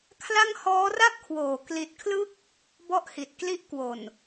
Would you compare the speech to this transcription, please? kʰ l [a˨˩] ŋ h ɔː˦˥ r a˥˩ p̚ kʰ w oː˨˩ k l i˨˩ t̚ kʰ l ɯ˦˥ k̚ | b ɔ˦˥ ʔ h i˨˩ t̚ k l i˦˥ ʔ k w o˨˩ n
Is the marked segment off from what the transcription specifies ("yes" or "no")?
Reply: yes